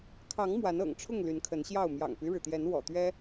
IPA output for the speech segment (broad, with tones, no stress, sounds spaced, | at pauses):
kʰ ɑ˨˦ ŋ m w a˨˦ n ɤ̰˨˩ ŋ ʈ͡ʂʰ ʊ˥˨ ŋ l y˨˦ n kʰ ə˨˦ n ɕ j ɑ˥˨ ʊ̯ m j ɑ̰˨˩ ŋ p y˦ ɻ ɻ̩˩ t̪ j ɛ˨˦ n w ɔ̰˨˩ t̪ ɥ ɛ˦